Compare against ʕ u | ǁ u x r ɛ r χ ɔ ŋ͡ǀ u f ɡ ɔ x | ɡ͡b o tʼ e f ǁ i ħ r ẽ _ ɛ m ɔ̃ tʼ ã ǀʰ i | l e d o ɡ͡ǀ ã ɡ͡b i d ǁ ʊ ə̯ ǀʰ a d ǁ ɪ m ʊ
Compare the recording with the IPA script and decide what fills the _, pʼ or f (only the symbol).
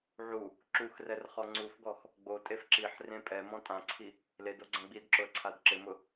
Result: pʼ